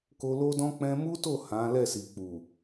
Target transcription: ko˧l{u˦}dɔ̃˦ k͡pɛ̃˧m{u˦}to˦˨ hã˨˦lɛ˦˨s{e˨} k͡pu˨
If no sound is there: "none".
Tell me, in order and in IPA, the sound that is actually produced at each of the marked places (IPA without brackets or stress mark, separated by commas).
o˦, u˦, i˨